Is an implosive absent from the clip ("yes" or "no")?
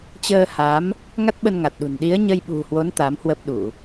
no